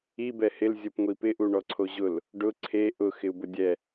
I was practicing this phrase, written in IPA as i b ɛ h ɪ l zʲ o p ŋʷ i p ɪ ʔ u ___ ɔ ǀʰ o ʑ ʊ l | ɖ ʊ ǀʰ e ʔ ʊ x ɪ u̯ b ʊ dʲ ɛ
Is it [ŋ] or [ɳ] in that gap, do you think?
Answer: ɳ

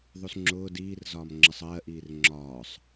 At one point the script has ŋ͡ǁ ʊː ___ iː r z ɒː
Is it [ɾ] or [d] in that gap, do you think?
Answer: d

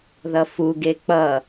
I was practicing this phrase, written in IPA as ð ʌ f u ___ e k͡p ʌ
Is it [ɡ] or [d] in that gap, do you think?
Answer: ɡ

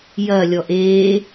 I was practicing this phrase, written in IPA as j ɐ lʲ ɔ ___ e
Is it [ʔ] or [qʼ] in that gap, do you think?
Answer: ʔ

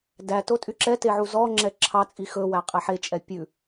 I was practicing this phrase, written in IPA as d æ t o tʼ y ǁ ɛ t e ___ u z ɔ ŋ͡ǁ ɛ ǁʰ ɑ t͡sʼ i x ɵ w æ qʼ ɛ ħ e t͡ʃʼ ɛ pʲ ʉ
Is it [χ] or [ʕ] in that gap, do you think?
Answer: ʕ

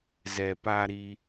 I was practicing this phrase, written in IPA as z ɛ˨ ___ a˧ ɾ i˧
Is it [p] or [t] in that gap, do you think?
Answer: p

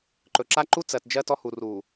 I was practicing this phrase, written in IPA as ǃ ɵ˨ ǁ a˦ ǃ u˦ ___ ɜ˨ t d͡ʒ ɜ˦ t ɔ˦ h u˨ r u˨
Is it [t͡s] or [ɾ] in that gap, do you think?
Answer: t͡s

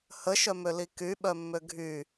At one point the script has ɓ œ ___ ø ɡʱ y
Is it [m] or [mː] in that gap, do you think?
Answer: mː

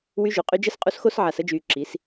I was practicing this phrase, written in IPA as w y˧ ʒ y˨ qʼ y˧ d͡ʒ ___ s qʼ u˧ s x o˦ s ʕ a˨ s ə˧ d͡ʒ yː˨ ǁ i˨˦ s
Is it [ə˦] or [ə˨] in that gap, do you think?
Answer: ə˦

